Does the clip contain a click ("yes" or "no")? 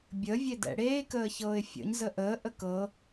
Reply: no